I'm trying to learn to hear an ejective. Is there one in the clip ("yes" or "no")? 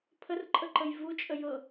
yes